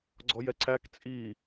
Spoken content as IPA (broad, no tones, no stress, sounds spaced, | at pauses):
ɡ͡ǀ ɔ j ɛ ǀ æ k t͡sʼ i